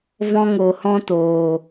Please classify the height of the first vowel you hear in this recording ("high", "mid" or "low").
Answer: mid